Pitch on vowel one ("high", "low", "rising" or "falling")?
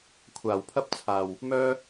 low